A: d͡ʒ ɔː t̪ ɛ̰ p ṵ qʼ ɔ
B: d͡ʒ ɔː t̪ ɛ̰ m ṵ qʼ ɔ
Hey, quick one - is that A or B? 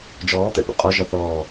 A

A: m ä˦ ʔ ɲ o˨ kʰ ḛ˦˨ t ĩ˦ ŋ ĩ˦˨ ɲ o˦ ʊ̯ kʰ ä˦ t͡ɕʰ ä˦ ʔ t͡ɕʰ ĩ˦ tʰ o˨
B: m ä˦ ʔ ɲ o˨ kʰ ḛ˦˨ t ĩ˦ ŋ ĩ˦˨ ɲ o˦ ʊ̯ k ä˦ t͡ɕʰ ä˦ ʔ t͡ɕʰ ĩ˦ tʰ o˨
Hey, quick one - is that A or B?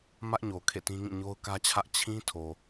B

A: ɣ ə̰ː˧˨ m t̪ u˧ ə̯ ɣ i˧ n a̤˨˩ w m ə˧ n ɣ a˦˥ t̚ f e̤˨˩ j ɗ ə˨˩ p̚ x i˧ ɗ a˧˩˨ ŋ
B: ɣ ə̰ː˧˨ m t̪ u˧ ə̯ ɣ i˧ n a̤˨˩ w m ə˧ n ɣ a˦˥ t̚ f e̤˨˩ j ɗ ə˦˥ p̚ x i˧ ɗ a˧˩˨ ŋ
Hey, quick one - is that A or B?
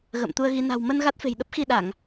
B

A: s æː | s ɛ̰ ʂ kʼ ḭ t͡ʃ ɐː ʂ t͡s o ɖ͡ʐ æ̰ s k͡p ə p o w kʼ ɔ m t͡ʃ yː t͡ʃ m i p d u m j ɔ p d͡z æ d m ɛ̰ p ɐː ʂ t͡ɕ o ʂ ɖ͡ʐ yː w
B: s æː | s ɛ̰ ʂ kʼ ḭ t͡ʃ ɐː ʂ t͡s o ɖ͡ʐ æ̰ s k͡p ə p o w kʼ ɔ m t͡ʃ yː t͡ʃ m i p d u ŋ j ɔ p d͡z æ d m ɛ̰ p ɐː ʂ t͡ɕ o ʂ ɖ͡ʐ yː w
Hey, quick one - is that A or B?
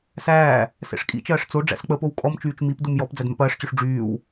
A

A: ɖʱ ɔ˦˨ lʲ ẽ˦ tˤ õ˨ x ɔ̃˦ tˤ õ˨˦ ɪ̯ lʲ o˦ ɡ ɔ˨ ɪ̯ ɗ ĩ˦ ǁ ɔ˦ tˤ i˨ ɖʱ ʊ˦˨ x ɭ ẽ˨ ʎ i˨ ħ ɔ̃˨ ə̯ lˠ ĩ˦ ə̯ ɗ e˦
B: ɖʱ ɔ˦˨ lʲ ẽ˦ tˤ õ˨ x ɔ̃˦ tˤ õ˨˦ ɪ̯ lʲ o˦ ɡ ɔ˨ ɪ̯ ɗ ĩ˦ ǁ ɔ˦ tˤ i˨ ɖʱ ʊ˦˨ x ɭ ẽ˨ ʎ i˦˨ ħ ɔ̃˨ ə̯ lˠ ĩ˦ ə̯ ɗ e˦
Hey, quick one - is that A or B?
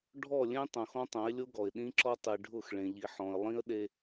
A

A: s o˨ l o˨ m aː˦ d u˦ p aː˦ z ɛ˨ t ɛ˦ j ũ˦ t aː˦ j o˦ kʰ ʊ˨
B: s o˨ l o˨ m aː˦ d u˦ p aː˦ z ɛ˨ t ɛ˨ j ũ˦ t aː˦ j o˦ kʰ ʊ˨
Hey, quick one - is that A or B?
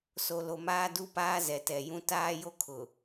B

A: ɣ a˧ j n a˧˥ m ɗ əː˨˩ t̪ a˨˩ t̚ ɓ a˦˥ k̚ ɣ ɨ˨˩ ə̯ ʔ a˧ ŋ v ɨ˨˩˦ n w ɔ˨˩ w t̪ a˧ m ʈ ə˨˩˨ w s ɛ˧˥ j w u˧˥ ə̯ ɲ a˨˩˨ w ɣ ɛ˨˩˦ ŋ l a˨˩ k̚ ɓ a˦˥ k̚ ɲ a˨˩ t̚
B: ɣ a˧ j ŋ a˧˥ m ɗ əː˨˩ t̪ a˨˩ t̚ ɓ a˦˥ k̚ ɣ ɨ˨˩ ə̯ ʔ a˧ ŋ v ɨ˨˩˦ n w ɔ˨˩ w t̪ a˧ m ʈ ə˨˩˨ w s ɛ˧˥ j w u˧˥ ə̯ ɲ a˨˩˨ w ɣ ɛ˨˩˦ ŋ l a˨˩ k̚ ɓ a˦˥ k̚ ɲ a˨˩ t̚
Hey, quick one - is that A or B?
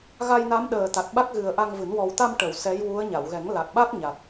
A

